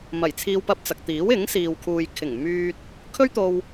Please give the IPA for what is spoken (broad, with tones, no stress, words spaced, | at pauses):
mɐ˨˩jt͡sʰiː˧wpɐ˧p̚t͡sɐ˨k̚ t̪iː˨˥wɪ˨˥ŋsiː˨wkʰuː˨j kʰɪ˨˩ŋ myː˧t̚ | kʰɵ˥ɥt̪o˧w